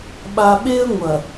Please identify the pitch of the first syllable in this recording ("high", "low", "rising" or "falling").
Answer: low